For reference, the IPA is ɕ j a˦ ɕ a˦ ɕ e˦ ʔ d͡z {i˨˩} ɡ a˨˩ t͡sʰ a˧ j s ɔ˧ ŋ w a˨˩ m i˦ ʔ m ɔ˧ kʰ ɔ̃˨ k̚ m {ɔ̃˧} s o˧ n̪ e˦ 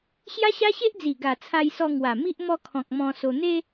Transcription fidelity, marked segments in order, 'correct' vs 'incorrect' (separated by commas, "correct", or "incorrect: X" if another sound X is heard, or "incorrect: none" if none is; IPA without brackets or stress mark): correct, correct